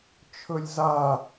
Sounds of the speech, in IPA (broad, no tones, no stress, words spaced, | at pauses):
t͡ʃʰɵlʲza